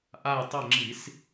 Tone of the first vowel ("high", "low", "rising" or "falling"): falling